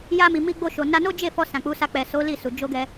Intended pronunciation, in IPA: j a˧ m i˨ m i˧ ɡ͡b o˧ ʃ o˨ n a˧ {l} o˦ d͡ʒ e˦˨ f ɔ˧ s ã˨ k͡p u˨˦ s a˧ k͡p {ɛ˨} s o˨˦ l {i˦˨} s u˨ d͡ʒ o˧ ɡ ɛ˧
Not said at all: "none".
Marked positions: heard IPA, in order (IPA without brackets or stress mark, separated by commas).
n, ɛ˨, i˦˨